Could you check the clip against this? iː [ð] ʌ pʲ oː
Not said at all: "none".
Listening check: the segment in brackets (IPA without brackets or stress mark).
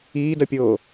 d